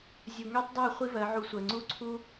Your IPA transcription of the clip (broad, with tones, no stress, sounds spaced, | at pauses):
zʲ u˨ ŋ ø˦ tˤ dˤ ɜ˦˨ χʷ i˦ v ɜ˨˦ ʕ u˧ sʷ ɜ˨ ŋ͡ǀ u˦ ǀʰ u˦